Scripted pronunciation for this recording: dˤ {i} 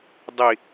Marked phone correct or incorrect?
correct